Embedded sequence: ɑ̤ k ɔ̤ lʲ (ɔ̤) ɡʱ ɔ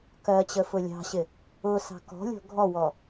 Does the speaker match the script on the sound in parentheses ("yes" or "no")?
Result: yes